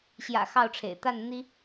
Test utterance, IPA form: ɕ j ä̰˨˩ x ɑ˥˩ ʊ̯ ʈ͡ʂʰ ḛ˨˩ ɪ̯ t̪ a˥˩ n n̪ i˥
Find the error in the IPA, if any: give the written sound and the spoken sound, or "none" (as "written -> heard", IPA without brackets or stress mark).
none